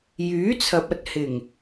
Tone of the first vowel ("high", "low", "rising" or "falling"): rising